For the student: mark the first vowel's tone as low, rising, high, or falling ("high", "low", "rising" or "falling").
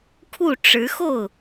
falling